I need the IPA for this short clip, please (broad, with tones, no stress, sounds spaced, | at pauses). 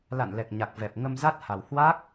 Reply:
l a̰˧˨ n l ɛ˨˩ k̚ ɲ a˨˩ k̚ v ɛ˨˩ p̚ ŋ ə˧ m z a˦˥ t̚ h a˨˩ w h w a˦˥ k̚